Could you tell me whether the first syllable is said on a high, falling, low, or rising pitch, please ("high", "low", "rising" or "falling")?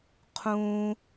high